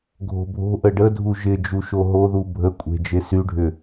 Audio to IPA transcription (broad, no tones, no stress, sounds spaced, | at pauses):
ɡʱ o̤ bʱ o̤ ʔ ə ɖ ə dʱ u ʒ ɪ d͡ʒ u ʃ o ɦ o ð u bʱ ə kʷʼ e̤ d͡ʒ e s y ɖʱ ʏ